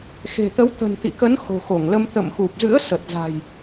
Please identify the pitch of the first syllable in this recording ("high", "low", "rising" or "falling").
low